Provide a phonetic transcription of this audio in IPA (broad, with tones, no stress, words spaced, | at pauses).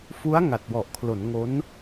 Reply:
fu˦˥a̯ ŋa˨˩t̚wɔ˨˩ʔkʰlo˩˦n ŋo˦˥n